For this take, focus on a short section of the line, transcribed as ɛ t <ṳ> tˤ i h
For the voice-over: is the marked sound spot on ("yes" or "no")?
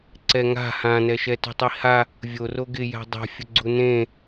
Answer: yes